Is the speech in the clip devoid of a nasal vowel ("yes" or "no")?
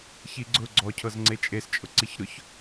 yes